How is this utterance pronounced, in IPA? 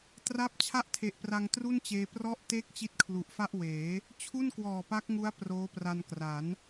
t r a˦˥ p̚ t͡ɕʰ a˥˩ ʔ tʰ e˨˩ ʔ p r a˧ ŋ t r u˥˩ n t͡ɕ eː˧ p r ɔ˦˥ ʔ t eː˥˩ k̚ t͡ɕ i˦˥ t̚ kʰ l u˨˩ ʔ f a˥˩ ʔ w eː˩˦ | t͡ɕʰ u˥˩ n k w ɔː˨˩ p a˦˥ k̚ ŋ u˦˥ a̯ p r oː˦˥ p r a˧ n k r a˩˦ n

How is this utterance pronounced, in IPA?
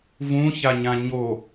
v ũ ç a ɲ ã ɲ o

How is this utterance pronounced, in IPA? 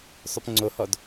sˤ ʊ p ŋ͡ǀ o h ɔ d

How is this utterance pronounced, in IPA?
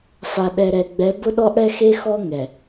f a˨ ɗ ɛ˨ ɾ ɛ˨ ɡ͡b ɛ˨˦ b ʊ˦ ɗ ɔ˦ ʔ ɽ ɛ˦ x e˦ x ɔ˦ ŋ ɛ˨

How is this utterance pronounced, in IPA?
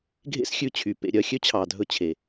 ɡʱ ḛ˦ s xʲ ʉ˧ t͡ɕʰ y˨ p ḛ˨ ɾʲ œ˨ xʲ ø˦ t͡ɕʰ ɑ˨ dʱ ɵ˧ t͡ɕʰ e˨

